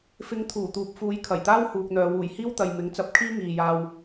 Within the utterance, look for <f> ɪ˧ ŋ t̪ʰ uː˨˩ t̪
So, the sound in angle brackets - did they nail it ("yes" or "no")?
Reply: yes